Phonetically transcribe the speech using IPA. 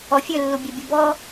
ɔ fʲ ø lː u bʲ ɛ bʲ ɛ b ɔ

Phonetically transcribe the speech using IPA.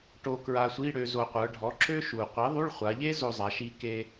ʈ o˧ k ɹ a˧ sʷ i˧˥˧ ɽ ø˧ z o˨˩ qʷ ə˞˩˧ ɖʱ ɔ˩˥ ǁ ø˥ ʃ u˨˩ qʷ i˩˥ ðˤ u˧˥˧ ɭ χʷ a˩˧ ʎ e˥ z o˧ zˤ a˩˧ ʃ i˧ k e˧

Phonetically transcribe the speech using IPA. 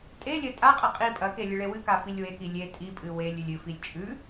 tʼ e lʲ ɐ tʼ a qʼ ɐ qʼ i pʼ ɐ k e lʲ ɨ ɭ e w ɨ k a f i lʲ w e k i lʲ e tʼ i pʼ ɨ w e lʲ ʉ lʲ ɨ f i lʲ t͡ʃʼ ʉ

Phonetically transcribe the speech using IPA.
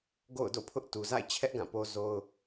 ɡ o̰˦˨ ʊ̯ d o̰˦˨ pʰ ʊ˦ ʔ t u˨ z a̰˦˨ ɪ̯ t͡ɕʰ ɛ˦ ʔ ɡ ã˦˨ p o˦ z o˦ ʊ̯

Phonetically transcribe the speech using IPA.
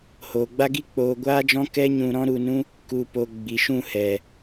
h oː˨ ɡ͡b a˦ ɡ i˦ k͡p oː˧ ɡʷ aː˦ d͡ʒ ɔ̃˦ k ɛ˦ ɲ ũ˧ ɾ ɔ̃˦ ɾ u˧ n ũ˦ | k u˨ p o˨ ɡ͡b i˨ ʃ ũ˦˨ h ɛ˨

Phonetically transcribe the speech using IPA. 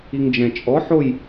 i ŋ d͡ʒ ɛ̃ t͡ʃʼ ɔ ħ o j

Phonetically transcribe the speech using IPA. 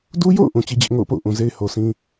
d u˦ j o̰˦˨ ʊ̯ ʔ ũ˨ t͡ɕ i˦ d͡ʑ ɪ˦ ʔ ŋ o̰˦˨ ʊ̯ p o̰˦˨ ʊ̯ ʔ ũ˨ z e˦ ɪ̯ h o˨ sʰ ĩ˦

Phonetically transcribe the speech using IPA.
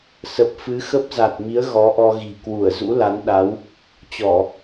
s ə˨˩ p̚ f ɨ˨˦ x ə˦˥ p̚ z a˨˩ t̚ m i˨˦ ə̯ ɣ ɔ˨˦ ʔ ɔ˧ ɣ i̤˨˩ k w u˧˩ ə̯ z ṵ˧˥ l a˨˦ n ɗ a˨˦ w | t͡ɕ ɔ˧˩˨

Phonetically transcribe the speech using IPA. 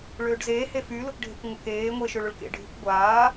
ɭ øː ɖ z eː h e f y l ʊ k ɖʱ e kʷ ŋʷ a k eː ŋʷ eː ʃ ø ɭ ʊ ɭ k ḛ ɖʱ y kʷ ɡʷ aː

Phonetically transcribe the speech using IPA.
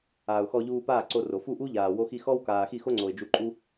aː˨ ʊ̯ x ɔ˧ ʎ uː˧ p aː˦˨ ǀ o˧ r o˨ f u˦˨ ʔ u˦ ʎ aː˨ w o˧ x i˧ x ɔ˦ w k aː˨ x i˦˨ x o˦ ŋ͡ǀ o˨ ɪ̯ d͡ʒ u˧ ǃʼ u˦

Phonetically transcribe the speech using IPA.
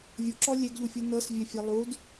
vʲ u ǁ ɔ lʲ e ɡ ʎ u fʲ ɯ n ɤ s vʲ ɛ fʲ ɛ lˠ u d

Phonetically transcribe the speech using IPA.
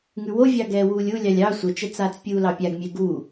ŋ ʉ w o vʲ ɑ ɡ ɛː w uː lʲ u lʲ ɑ lʲ ɑ sʷ ɜ t͡ʃ ɛ t͡s aː t͡s pʲ uː l ɑ pʲ a ɡ mʲ ɛ ɡ u

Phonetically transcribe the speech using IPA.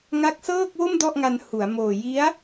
ŋ a˦˥ k̚ s ɤː˥˩ k̚ w o˥˩ m d ɔ˥˩ ʔ ŋ a˧ n h u˩˦ a̯ m oː˨˩ j i˦˥ a̯

